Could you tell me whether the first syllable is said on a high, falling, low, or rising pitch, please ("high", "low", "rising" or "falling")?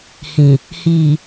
low